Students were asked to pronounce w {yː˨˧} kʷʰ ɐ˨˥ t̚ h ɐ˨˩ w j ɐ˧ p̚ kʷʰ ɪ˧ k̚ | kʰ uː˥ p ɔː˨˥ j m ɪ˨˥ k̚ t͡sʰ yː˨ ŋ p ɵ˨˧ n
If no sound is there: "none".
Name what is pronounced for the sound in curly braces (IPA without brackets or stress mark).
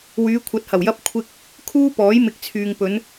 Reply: yː˨˧